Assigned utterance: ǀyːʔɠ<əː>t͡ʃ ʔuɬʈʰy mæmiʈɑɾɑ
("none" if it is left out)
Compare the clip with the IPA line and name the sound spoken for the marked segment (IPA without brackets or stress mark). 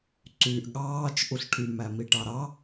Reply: ɑː